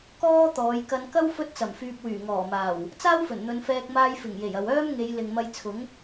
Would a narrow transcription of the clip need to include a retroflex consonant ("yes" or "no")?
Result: no